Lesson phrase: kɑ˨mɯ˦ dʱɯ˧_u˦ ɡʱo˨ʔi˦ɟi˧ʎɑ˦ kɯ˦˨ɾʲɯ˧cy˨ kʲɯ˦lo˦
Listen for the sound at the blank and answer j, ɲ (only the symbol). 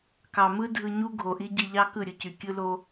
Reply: ɲ